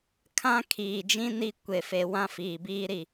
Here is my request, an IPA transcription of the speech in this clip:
kʰ ã˦ kʰ iː˨ d͡ʒ ĩ˦ n i˦ kʷ e˨ f e˨ w ã˦ f iː˨ b iː˦ ɾ i˦˨

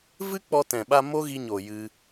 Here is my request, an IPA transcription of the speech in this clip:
v ɨ˦ k͡p ɔ˧ t ɛ̃˨ ɓ a˧ m o˦ ɣ i˧ ɲ o˨ j ɨ˧

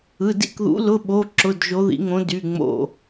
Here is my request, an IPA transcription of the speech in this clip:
ɯ˩˧˩ d ḭ˥˨ k ð ṵ˧˥ l ʊ˧˥˧ ɓ o˧˥˧ ǁ ʊ˧˥˧ d ʒ o˧˥ ð ḭ˧˥ ŋ õ˧˥ d y˧˥˧ ŋ͡m o̰˥˨

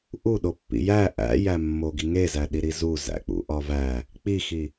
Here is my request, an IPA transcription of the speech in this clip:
ʔ u ɗ o pː ḭ j æ ʔ æ̰ j æ mː o ɡ i ŋ e z æ ɗ i ɾ i z u z æ̰ k͡p ṵ ʔ ɒ v æ | k͡p i x i

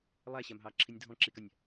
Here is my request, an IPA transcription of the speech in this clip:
lˠ æ ɕ æ m ɦ ɑː ǁʰ i nʲ dʱ ɔ̃ ǁ i k a nʲ

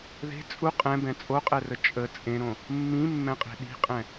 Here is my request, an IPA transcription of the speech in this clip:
ð e̤ t͡sʼ u qʼ ɛ̃ b ɛ̃ t͡sʼ o qʼ ɛ r ə t͡ʃʼ ə t͡sʼ ẽ ɾ õ | mː ĩ mː ɛ̃ qʼ e̤ ɗ i̤ qʼ ɛ̃

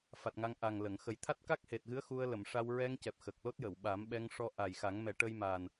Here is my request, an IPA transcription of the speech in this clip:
f a˨˩ t̚ ŋ a˧ ŋ ʔ a˨˩ ŋ l ə˨˩˨ ŋ x ə˨˩ j t̪ʰ a˦˥ t̚ k a˦˥ k̚ h e˨˩ t̚ ɣ ɨ˧˥ ə̯ x u˧ ə̯ l ə˨˩˨ m ʂ a˧ w ɹ ɛ˧ ŋ c ɛ˨˩ p̚ x ə˨˩ k̚ l o˦˥ t̚ j ə˨˩˨ w ɓ a˨˩˦ m ɓ ɛ˧ ŋ ʂ ɔ˧ ʔ a˨˩ j x a˨˩˦ ŋ m ɛ˨˩˦ ʈ ə˧ j m a˨˩ n

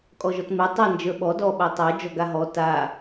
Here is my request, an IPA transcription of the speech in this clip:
kʼ ɔ ʒ ɔ t m e tˤ a n d͡ʒ ə˞ ɓ ɔ d ɔ ɓ a tˤ ə˞ d͡ʒ ɔ ɡ a ɦ ɔ t a

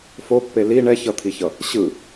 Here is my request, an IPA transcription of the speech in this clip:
f o pː e l i ɳ ɛ ç ʌ t̪ʰ i ç ʌ | ɕ ɯ

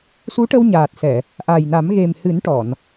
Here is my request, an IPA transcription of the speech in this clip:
s u˧˥ ʈ ə˧ w ɲ aː˨˩ t̚ s ɛ˨˩˨ | ʔ a˨˩ j n a˨˩˦ m ɣ e˨˩ m h ɨ˨˩˦ n ʈ ɔ˨˩˨ n

